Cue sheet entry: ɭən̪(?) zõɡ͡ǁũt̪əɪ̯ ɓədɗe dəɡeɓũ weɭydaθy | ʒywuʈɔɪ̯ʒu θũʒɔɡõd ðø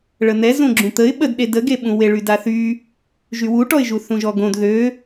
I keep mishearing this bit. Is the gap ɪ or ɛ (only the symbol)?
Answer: ɛ